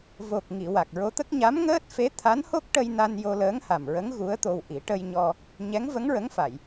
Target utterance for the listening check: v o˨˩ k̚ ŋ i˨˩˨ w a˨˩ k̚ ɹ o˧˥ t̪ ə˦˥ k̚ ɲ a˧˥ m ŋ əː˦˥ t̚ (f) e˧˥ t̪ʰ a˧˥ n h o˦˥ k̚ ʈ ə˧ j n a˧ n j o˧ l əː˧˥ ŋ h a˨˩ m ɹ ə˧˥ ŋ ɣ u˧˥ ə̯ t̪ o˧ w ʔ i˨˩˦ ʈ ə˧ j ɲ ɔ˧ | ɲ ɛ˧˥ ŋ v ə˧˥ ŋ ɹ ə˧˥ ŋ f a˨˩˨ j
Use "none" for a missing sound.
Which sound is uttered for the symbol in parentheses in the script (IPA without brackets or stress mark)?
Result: f